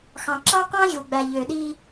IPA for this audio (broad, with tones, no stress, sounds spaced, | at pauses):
x ɑ̃˨ ǁ ɑ˦ q ɑ̃˦ ʑ u˨ ɡ͡b æ˨ ʎ ø˨ ɗ i˦